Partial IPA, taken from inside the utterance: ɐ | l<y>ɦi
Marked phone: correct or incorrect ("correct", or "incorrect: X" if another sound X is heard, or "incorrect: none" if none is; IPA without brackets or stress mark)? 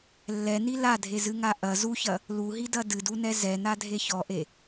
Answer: incorrect: u